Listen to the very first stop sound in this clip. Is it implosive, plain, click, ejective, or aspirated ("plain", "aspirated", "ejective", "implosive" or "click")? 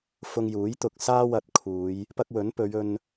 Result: plain